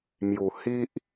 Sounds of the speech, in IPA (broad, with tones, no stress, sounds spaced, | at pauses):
m j u˨˩ h i˦ ʔ